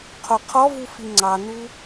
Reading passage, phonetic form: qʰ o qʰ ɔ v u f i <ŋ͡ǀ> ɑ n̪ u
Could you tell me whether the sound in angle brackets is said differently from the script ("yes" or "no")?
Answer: no